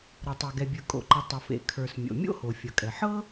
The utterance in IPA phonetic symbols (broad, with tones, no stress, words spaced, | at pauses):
ɾɤ˩tˤe˩ ɡɛ˩bʲə˞˩ kʼo̰˩ǃʌ˩ tˤʌ˩fḛ˩ kʰə˞˩s mʲo̰˩mʲo̰˥ho˩ fʲʌ˩kʼɛ˩ ħɤ˥